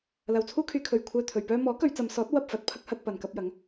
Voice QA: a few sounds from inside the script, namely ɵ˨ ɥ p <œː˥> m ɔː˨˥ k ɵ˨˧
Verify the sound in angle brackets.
correct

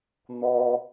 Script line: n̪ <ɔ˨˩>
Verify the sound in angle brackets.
incorrect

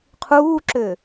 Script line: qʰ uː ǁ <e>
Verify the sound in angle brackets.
incorrect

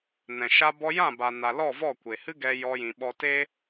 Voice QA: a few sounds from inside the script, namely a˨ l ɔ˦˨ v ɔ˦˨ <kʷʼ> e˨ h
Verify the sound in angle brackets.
incorrect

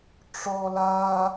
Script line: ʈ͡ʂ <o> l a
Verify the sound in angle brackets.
incorrect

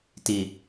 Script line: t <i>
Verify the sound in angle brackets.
correct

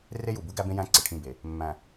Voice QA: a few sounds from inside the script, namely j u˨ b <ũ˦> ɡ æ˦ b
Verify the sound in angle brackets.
incorrect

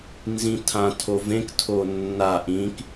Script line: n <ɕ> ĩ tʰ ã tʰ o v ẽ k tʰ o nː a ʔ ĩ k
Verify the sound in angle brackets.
incorrect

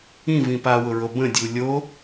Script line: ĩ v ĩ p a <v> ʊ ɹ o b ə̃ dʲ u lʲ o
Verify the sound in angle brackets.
incorrect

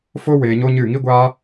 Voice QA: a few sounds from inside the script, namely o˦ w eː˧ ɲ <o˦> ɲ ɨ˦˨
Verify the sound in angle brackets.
correct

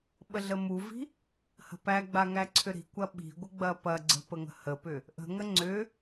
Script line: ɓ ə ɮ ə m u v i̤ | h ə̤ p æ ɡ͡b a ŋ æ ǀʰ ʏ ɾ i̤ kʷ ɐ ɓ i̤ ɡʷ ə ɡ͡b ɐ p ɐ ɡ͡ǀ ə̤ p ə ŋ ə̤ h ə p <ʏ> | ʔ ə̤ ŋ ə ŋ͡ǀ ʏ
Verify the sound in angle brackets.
correct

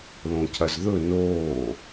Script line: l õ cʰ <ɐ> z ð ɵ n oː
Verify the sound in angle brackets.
correct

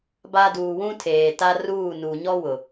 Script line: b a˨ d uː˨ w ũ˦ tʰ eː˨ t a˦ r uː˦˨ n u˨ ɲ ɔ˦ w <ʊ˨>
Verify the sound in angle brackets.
correct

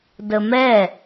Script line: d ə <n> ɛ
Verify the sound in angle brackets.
incorrect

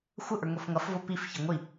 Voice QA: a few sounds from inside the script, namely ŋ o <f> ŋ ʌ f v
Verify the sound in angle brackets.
correct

